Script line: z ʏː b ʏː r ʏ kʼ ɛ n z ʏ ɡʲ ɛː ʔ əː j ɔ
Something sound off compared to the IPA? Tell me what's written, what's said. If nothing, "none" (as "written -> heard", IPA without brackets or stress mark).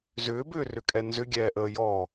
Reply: none